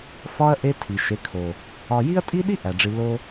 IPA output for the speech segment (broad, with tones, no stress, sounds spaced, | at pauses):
f ɒ˦ ɐ̯ ʔ e˦ tʰ i˨ ʃ e˨˦ kʰ o˨ | ɒ˧ j i˦ ɐ̯ tʼ i˦ ɗ i˦ ʔ æ˨ ɖ͡ʐ i˧ l o˦